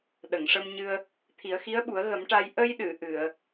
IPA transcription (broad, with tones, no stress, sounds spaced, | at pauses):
ɗ ə˨˩˨ ŋ ʂ ə˧ m ɲ ɨ˧ ə̯ | t̪ʰ i˨˩˦ ə̯ x i˧˥ ə̯ ɓ u˨˩˦ ə̯ ɣ ə˨˩˦ m ʈ a˧ j ʔ ə˧ j ɗ ɨ˨˩˨ ʔ ɨ˨˩˨ ə̯